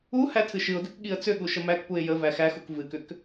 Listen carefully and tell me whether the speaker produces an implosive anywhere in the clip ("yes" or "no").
yes